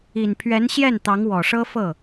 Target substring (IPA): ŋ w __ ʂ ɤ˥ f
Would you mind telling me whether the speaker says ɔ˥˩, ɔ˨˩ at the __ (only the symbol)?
ɔ˨˩